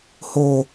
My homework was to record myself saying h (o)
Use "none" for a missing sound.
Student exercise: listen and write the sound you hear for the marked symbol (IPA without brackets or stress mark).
o